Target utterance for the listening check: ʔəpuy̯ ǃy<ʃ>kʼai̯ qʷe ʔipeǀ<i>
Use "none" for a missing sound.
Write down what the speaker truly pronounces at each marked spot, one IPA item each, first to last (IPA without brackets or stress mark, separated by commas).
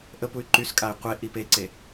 s, e